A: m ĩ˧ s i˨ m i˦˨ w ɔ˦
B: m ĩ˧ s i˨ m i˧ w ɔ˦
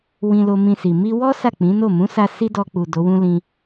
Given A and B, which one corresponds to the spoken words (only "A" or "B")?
B